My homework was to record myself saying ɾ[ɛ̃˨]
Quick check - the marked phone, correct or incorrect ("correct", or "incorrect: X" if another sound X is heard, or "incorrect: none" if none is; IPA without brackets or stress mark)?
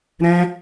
incorrect: ɛ̃˦